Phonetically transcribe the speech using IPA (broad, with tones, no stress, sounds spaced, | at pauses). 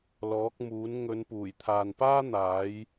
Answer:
l ɔː˨˥ k̚ m uː˨˥ n ŋ ɵ˨˧ n p uː˨˩ j t̪ʰ aː˨ n p aː˥ n̪ aː˨˥ j